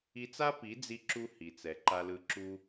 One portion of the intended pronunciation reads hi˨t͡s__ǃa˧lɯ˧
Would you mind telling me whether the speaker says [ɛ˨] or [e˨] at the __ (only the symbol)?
ɛ˨